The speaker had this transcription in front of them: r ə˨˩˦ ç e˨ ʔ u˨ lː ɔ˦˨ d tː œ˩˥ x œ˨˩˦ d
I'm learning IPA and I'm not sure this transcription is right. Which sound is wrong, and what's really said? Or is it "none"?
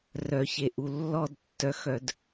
ə˨˩˦ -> œ˨˩˦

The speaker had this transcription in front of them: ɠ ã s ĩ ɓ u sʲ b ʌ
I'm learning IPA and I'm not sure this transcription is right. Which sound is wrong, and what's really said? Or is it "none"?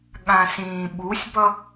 none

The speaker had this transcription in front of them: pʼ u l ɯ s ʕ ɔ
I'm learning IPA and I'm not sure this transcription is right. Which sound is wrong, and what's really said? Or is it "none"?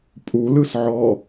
none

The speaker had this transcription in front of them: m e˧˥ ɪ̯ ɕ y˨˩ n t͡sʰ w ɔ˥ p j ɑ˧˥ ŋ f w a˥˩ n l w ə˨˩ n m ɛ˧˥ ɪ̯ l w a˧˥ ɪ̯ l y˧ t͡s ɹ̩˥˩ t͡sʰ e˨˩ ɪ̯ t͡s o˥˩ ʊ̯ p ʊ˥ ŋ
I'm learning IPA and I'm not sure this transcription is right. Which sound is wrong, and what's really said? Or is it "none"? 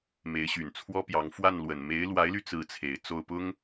ɛ˧˥ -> e˧˥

